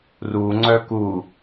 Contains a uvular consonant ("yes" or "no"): no